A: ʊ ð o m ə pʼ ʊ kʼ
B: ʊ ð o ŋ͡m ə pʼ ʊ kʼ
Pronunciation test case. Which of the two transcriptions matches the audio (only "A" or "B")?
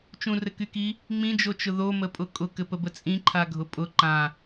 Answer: A